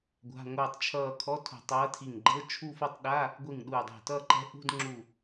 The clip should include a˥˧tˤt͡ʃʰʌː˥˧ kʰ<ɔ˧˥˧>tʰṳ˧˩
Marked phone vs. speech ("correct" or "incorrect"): correct